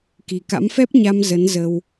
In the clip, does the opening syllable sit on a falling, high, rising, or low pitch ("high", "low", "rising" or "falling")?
low